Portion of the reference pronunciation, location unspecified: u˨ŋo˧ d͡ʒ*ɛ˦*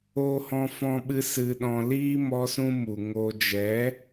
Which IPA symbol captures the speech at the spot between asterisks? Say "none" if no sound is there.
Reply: ɛ˨˦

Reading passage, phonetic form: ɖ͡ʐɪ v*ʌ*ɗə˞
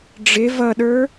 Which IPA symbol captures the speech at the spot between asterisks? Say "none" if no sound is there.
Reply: ʌ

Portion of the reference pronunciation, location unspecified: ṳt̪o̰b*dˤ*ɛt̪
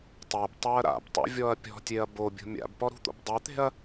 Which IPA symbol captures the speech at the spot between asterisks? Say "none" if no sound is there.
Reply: dˤ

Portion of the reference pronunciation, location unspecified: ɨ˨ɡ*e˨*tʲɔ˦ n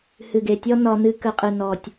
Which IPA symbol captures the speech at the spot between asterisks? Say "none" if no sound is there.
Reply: e˨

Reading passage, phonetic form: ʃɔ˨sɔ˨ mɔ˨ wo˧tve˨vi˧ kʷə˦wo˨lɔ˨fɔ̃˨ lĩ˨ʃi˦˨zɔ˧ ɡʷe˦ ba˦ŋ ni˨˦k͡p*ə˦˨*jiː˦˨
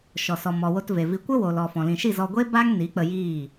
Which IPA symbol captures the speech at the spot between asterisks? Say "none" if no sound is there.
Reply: ə˧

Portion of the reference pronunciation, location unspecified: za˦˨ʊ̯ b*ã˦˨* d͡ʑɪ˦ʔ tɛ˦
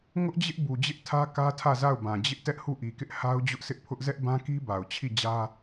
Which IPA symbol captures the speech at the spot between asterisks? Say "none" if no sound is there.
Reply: ã˨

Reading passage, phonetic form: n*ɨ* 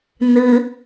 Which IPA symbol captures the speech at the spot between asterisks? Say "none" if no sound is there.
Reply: ɨ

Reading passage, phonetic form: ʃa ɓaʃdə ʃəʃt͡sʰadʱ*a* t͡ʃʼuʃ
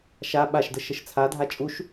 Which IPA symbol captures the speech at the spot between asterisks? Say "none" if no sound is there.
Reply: a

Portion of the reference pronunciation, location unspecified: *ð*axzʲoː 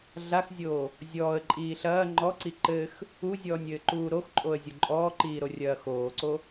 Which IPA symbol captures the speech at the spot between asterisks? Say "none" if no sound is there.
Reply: ɮ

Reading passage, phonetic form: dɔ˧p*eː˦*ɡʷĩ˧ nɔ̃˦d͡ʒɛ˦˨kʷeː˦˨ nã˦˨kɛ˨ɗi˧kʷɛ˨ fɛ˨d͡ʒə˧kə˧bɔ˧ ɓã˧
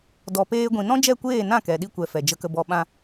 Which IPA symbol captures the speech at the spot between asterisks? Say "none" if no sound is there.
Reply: eː˦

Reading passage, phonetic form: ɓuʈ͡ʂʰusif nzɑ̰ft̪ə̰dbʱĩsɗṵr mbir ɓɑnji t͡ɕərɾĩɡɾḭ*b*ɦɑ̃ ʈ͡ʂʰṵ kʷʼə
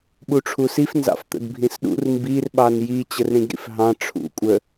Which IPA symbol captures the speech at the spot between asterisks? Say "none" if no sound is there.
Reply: f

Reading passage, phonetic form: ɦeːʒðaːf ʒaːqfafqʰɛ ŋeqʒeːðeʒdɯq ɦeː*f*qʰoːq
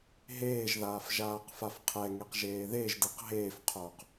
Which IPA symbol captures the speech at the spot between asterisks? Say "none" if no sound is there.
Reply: f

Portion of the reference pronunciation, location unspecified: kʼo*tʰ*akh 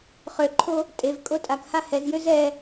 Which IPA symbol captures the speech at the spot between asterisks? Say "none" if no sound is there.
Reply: tʼ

